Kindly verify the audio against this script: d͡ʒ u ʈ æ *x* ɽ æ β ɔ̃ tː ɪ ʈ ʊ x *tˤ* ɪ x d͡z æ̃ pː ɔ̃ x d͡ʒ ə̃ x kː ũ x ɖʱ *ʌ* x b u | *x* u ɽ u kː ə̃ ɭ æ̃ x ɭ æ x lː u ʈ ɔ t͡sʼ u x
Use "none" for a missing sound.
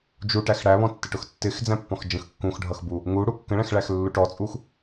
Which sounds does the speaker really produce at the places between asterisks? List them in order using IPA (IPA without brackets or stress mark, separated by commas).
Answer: x, tː, ʌ, ŋ